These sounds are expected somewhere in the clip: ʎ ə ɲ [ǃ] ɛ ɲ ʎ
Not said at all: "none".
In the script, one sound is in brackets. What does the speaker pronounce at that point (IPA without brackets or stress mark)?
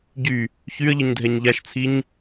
dʱ